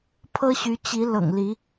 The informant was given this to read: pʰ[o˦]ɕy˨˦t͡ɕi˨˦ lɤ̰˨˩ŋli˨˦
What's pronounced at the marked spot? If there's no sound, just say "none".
ɤ˦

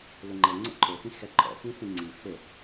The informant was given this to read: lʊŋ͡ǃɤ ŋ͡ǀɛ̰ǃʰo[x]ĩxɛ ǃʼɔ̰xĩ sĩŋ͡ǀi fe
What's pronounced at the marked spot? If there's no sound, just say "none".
x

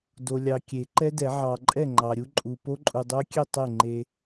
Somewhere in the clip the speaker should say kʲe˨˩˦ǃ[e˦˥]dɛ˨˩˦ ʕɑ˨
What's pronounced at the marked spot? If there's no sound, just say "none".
ɛ˦˥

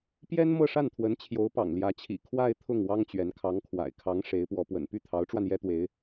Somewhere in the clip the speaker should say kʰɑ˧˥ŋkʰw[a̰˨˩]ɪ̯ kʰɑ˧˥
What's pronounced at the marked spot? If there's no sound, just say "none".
a̰˨˩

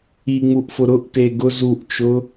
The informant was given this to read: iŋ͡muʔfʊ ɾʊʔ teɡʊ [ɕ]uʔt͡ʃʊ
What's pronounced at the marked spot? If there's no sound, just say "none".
z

